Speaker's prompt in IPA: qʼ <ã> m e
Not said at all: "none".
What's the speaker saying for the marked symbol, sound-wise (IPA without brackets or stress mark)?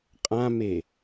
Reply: ã